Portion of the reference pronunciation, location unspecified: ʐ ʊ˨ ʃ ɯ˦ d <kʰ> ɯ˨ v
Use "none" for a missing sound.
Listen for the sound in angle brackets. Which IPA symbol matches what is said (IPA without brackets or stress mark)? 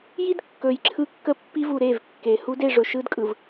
kʼ